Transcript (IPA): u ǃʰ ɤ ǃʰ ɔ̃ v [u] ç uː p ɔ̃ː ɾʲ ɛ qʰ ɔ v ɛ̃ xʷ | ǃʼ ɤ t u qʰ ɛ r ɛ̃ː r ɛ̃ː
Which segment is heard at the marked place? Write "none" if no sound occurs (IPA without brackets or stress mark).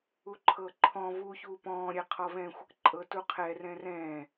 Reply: u